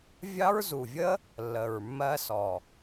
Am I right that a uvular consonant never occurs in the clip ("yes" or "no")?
yes